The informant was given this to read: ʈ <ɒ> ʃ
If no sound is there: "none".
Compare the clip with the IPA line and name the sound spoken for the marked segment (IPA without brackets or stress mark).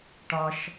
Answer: ɒ